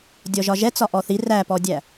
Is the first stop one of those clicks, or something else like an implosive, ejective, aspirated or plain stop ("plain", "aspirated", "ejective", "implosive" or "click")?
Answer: plain